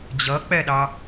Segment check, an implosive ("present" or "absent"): present